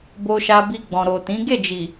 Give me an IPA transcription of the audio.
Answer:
b o˧ ʃ a˧ b i˧ ɡ͡b ɔ̃˨ ɾ o˨ t ĩ˨˦ ɡ e˦˨ d͡ʒ i˨

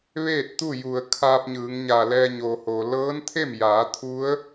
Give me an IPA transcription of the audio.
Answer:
ʋ eː˥˨ t̚ t̪ u˥˨ j u˩ ə̯ kʰ aː˧ p̚ ɲ ɯː˩˧ ŋ ɲ a˧˩ l ɛː˧ ɲ o˩ h o˩ l ɤː˧˥ n t̪ʰ e˥˨ m j aː˩˧ t̪ʰ u˧˥ ə̯

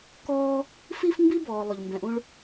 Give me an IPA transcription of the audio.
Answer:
k ɔː˥ | f i˦ f m b i˦ b ɔː˨ lˠ ʊ˩ ʎ m b ɛ̃˨ ʔ ũ˥ ɭ

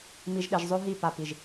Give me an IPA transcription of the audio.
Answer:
m i˨ ʒ ɗ e˨ ʒ zˤ ø˦ ɦ i˦˨ p a˨ p i˨ ʒ

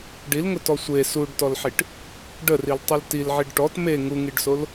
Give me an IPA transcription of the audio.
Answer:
ɖ i l ŋ ʊ t ɔ sʷ e s u ɖ t ɔ l ħ i ʈ | ɖ ə r i l tˤ ɨ l t i l ʕ i ɖ ʈ ɔ t m e ŋ u ŋ i ɖ s o l

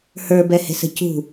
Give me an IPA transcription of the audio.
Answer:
h ə˞ b ɛ h e̤ s ə̤ c ṳ

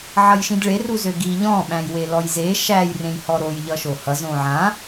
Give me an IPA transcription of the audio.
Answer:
ʕ ʌ j ʃ ĩ d ɭ e r u z ø ɡ i ʎ ɔ̃ ɓ æ̃ j w e l ɔ j z e ʃ æ j r ẽ j h ɔ ɾ o j ʎ ʌ ʃ o h ʌ z õ ʕ ã

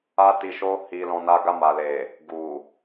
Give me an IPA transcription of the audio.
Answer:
a˦ t i˧ ʃ o˦ h i˧ l ɔ̃˧ n a˧ ɡ a˧ m a˨ l e˨ | ɡ u˨

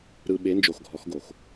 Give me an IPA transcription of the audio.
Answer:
ɾ ɯ˨ ɓ e˨˦ n d͡ʒ o˨ x ɡʱ ɔ˨˦ x ɡ o˨ x

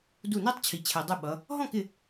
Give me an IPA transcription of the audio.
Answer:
d u˧˩ n ɛ˦˥ tˤ t͡ɕʰ i˩ t͡ɕʰ ɛ˩ dˤ u˧˩ ɓ ʌ˩˧ | ɦ ɔ̃˥˨ k ɪ˧˩

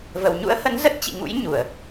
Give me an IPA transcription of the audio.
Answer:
v ə˨˩ w ɲ ṵ˧˥ ə̯ h ə˨˦ n z ə˦˥ t̚ t͡ɕ ḭ˧˨ ŋ ṵ˧˥ j ɲ u˧˩˨ ə̯

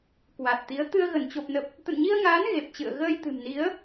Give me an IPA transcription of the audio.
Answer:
k w a˨˩ t̚ t̪ i˨˦ ə̯ t̪ ɨ˧ ə̯ ɣ ə˧˩ n t͡ɕ o˨˩ p̚ n ə˨˩ p̚ | t̪ ə̰˧˨ n ɲ i˧ ə̯ ŋ aː˨˦ n ɣ e˨˩ p̚ t͡ɕ ɨ̰˧˨ ə̯ ɣ əː˧ j t̪ ɨ̤˨˩ m n i˨˦ ə̯

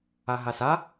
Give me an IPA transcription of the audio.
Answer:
a ɦ a s a

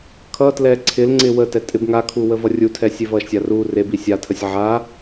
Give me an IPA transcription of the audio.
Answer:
kʰ ʌ t l ɛ ǀʰ ɪ l ŋ͡ǀ ɪ w ə t ɛ tʼ ɪ b ŋ a kʰ u w ə v ʌ rʲ u tʰ ɛ sʲ e v ʌ ʃ sʲ a r u r e b i sʲ a tʰ ə sʲ ʕ a

